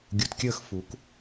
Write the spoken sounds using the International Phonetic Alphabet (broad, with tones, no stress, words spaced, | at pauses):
ɡʲu˨tkʲəː˦xfu˨˦k